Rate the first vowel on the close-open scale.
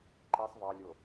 close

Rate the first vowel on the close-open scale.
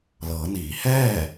mid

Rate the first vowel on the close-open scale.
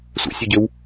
mid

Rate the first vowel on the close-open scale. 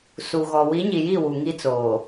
close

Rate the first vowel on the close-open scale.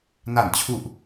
open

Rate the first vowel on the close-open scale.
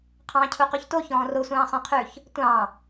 open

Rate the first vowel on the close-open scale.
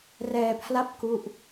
mid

